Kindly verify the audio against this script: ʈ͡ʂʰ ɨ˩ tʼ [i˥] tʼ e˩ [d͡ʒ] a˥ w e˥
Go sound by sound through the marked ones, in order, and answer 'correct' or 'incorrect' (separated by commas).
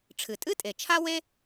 incorrect, incorrect